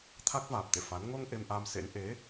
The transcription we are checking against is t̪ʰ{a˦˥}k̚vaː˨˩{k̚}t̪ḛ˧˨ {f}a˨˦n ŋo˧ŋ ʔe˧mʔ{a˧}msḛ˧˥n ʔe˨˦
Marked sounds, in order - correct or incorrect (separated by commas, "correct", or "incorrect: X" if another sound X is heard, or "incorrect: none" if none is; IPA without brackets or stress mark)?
correct, incorrect: p̚, correct, correct